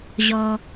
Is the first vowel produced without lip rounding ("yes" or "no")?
no